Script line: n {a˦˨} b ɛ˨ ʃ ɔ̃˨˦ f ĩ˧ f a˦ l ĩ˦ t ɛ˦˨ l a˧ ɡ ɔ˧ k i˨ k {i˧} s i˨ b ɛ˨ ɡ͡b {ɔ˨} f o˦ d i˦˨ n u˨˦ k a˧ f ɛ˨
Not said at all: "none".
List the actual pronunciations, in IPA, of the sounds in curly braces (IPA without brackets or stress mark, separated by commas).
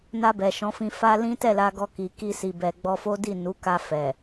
a˧, i˧, ɔ˧